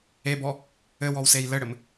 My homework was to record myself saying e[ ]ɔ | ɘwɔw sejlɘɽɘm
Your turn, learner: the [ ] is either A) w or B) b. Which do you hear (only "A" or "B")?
B